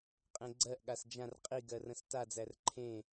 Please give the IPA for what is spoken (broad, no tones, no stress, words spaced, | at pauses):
qʼẽɡ͡ǀɜʔ ɠasd͡ʒãr qʼiɡɜrə̃s tad͡zær ǃʰẽ